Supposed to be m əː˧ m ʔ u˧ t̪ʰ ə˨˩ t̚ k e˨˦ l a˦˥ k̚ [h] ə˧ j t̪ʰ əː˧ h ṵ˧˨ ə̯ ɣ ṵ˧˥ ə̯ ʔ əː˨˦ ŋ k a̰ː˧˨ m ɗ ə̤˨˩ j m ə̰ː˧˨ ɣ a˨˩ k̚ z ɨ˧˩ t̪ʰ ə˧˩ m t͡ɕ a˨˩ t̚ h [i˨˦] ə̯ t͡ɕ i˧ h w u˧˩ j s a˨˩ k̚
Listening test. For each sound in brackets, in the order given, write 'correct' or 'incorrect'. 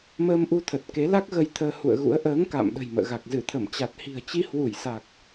incorrect, incorrect

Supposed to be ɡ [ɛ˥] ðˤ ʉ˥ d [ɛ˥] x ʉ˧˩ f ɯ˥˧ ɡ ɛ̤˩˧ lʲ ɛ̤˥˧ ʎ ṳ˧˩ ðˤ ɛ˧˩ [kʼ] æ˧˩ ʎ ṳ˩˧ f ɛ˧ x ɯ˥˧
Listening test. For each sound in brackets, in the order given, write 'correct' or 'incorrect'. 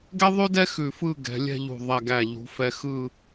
correct, correct, incorrect

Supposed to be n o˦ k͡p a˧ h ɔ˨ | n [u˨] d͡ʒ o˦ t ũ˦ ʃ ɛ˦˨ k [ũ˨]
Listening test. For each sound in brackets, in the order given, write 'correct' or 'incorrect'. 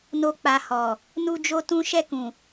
incorrect, correct

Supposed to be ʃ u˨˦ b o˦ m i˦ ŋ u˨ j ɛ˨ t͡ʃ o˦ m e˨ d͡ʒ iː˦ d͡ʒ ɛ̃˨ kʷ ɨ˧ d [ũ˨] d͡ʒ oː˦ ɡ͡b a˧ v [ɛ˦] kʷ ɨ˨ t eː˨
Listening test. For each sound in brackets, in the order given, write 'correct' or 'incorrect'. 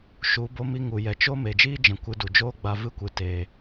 incorrect, incorrect

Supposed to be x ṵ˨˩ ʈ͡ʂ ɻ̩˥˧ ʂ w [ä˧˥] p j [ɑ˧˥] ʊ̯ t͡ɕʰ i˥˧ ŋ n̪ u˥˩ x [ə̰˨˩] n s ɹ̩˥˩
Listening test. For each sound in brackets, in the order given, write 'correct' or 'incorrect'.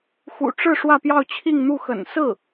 incorrect, incorrect, correct

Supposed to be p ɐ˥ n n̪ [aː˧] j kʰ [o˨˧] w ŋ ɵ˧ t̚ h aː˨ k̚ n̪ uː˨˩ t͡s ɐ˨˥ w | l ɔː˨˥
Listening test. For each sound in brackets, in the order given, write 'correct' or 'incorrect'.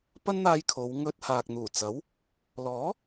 correct, correct

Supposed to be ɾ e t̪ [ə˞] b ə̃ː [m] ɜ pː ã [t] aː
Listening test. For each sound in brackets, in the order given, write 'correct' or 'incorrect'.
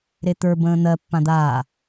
correct, incorrect, incorrect

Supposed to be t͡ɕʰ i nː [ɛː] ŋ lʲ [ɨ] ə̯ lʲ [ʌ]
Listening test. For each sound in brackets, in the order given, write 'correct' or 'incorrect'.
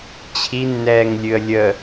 correct, correct, incorrect

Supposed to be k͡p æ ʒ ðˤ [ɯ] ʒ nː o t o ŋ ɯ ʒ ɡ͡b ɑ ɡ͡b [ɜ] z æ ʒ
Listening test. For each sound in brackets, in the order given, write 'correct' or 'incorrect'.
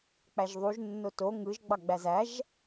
incorrect, incorrect

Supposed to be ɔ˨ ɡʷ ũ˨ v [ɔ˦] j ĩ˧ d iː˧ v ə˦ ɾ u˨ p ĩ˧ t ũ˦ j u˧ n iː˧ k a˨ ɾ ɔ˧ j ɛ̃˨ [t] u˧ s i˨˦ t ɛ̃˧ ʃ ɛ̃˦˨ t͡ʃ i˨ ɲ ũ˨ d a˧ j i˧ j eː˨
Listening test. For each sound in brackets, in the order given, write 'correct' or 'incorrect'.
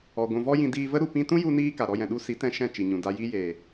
correct, incorrect

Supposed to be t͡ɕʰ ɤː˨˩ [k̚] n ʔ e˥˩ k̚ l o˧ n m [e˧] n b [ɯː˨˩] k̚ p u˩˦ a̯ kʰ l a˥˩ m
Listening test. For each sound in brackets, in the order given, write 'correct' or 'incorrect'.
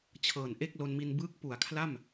incorrect, incorrect, incorrect

